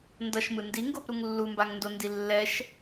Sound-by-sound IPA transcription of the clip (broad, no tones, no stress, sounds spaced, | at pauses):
n d ʌ ʃ m ɯ n d i ŋ ɡ o p ɾ u ŋ lː u m b a ŋ n d o n d i lː ɛ ʃ